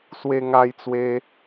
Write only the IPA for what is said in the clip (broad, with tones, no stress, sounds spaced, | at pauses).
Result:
s w e˦ ŋ a˦ j t͡s w e˦